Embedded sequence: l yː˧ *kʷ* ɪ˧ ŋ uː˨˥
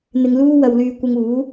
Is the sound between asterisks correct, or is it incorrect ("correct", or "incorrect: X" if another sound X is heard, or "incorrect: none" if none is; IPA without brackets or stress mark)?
correct